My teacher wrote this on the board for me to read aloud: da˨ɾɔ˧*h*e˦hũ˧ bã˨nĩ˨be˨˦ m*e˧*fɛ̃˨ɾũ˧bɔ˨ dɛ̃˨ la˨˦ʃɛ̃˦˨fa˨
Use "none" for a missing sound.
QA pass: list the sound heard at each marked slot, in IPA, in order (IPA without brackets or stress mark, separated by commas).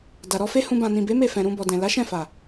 f, e˦˨